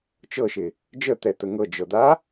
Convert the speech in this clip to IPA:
t͡ʃ ɤ ʃ ɪ | d͡ʒ ə t̪ ɛ t̪ ə ŋ ɤ d͡ʒ ɤ d̪ a

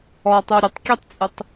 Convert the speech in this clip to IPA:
ɔ tˤ u ɾʲ ɘ tˤ kʲ ɛ tˤ t͡sʼ ɨ tˤ

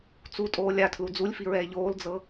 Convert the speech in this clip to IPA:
t͡s u tʼ oː lʲ a tʰ l u d͡z u lʲ f i ɹ ɛː ʎ oː l d͡z ɤ

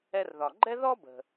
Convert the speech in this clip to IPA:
ɛ˧ r ð ɒ˩ ɡ͡ǃ ɛ˥ ð ɔ˥ b ə̤˩

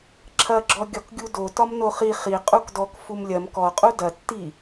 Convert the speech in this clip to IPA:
ǁʰ ɐ ɡ͡ǁ ɔ ɡʲ ɒ k ɡʲ u d o t ɒ m n o χ i χ i qʼ u k d ɔ k f u m lʲ ɐ m k ɔ qʼ u d ɐ tː i

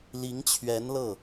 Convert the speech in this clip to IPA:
l i˧˥ ŋ t͡ɕʰ ɥ ɛ˧˥ n l ɤ˥˩

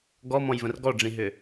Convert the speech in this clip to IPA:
ɡ ɔ m ɔ̃ j v ə̃ r ɡ ɔ ɖ͡ʐ ĩ ɦ ʏ

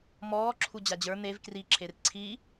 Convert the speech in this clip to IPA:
m ɔː ǁʰ u d͡ʑ a d͡ʑ ə˞ n̪ e v k r i ǁʰ e r ǀʰ i

